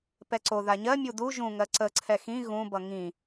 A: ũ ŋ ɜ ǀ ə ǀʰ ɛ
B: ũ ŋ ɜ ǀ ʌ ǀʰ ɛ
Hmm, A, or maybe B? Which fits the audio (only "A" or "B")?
A